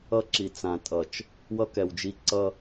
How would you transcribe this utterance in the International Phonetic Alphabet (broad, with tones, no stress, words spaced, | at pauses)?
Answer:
ʌ˦ǁi˨ t͡sã˨tʼʌ˨t͡ʃ | wʌ˦kɛ˨wd͡ʒi˦ ǀʌ˦